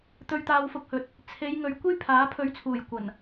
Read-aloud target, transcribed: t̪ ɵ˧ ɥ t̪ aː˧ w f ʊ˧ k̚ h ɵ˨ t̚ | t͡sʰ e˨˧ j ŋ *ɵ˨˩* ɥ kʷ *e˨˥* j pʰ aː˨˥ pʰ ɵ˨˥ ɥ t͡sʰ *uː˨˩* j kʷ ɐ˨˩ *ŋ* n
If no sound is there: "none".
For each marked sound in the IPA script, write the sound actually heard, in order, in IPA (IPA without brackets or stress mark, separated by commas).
ɵ˨, e˥, uː˨˩, none